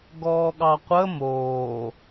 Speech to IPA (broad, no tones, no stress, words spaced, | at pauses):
ɡɔːɠɑqʷə moː